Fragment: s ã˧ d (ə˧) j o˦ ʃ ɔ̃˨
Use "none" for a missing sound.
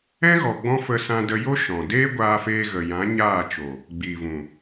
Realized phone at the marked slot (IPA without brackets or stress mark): ə˧